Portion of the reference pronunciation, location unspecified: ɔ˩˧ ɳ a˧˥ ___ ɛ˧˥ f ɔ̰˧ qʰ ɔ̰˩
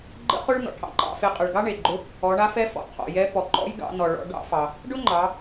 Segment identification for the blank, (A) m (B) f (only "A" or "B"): B